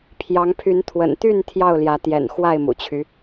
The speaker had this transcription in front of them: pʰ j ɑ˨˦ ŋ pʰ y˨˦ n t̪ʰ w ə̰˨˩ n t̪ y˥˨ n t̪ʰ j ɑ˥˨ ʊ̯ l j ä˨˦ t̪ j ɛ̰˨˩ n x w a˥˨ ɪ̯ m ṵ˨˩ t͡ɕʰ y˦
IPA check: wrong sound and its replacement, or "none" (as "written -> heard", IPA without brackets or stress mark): none